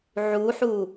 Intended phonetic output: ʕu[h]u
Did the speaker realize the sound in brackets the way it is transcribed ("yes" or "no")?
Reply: no